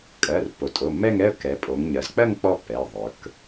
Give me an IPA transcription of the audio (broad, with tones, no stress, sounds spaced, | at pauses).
kʼ ɜ˩˧˩ r pː o˩˧ tʼ o˩˧˩ m ɛ˥˧ ŋ ɛ˥˧ ə̯ k ɛ˩˧ pʼ o˩˧ ŋ ɲ ɜ˩˧ z k͡p ɜ˥˧ ŋ k͡p ɔ˥˧ pː ɛ˩˧˩ ɪ̯ ðˤ ə˞˩˧ k